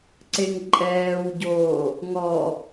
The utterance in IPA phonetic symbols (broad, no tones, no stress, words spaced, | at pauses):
ǀeŋǃʼɛːwɟoː | ŋɔ